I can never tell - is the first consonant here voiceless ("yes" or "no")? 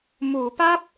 no